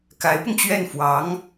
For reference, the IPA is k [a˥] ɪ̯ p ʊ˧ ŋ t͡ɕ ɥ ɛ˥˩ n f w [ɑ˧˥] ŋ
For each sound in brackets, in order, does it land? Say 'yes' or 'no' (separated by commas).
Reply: no, yes